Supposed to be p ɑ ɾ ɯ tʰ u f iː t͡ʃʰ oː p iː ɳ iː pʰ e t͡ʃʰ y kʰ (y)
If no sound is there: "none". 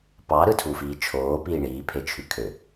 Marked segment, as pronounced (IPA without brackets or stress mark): ø